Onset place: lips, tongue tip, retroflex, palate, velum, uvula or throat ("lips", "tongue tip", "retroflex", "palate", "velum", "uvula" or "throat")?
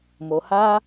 lips